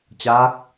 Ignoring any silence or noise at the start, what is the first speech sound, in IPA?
t͡ɕ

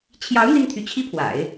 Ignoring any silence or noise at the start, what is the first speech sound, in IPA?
t͡ɕʰ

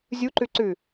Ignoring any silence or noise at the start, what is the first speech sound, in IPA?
zʲ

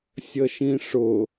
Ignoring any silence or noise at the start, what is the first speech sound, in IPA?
sʲ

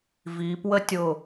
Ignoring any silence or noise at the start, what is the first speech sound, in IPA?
v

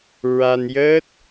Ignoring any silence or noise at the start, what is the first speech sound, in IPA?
ɹ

